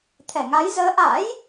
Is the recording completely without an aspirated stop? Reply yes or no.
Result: no